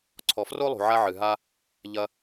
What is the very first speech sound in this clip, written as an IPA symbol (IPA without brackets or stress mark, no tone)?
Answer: ǀʰ